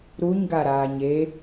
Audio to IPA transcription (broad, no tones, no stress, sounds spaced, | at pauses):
ɾ u ɲ ɡ a ɾ aː ɲ e